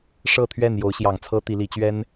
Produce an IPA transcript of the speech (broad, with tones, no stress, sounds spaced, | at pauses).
ʂ ɤ˥˨ t̪ʰ ɥ ɛ˥˨ n j o˨˦ ʊ̯ ɕ j ɑ˨˩ ŋ t͡sʰ ɤ˦ t̪ i˨˦ l i˨˦ t͡ɕ ɥ ɛ˦ n